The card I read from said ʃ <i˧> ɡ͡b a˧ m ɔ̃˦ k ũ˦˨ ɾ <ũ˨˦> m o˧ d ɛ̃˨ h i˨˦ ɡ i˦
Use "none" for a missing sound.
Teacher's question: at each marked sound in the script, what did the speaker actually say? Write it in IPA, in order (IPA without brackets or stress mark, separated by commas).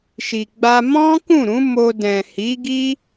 i˨, ũ˨˦